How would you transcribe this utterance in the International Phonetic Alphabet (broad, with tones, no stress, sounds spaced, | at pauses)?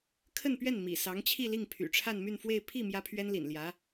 kʰ ə˥˧ n p ɥ ɛ˥˩ n m ḭ˨˩ s ɑ˧˥ ŋ t͡ɕʰ i˥˧ l i˥˩ ŋ pʰ y̰˨˩ ʈ͡ʂʰ a˥˧ n m y˥˧ n f w e˥˧ ɪ̯ pʰ i˥˩ m j ä˥ pʰ ɥ ɛ˥ n l ḭ˨˩ n l j ä˧˥